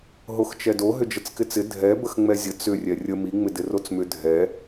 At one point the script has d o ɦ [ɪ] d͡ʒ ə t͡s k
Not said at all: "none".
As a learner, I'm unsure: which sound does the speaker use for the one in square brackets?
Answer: ʏ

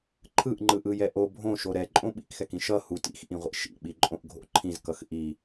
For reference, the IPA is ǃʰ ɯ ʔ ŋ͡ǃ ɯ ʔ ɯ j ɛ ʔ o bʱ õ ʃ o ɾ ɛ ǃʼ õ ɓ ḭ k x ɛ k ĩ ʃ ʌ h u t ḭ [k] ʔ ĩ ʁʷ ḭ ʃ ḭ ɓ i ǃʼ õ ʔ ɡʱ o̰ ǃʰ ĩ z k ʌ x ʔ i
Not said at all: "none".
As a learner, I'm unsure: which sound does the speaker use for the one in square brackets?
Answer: x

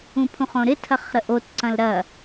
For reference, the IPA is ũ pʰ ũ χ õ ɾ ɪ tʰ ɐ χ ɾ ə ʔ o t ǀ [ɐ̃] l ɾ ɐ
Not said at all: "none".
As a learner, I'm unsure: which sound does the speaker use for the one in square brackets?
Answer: ɐ̃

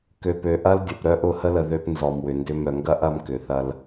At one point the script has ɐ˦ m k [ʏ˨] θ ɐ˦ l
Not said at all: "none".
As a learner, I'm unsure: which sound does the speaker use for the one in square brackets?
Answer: ʏ˨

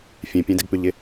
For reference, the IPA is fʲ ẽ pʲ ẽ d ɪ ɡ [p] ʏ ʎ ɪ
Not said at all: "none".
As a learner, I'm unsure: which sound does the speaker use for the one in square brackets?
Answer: p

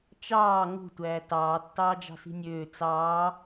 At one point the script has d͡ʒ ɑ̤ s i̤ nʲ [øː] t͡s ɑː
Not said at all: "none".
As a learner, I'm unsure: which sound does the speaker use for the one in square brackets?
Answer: øː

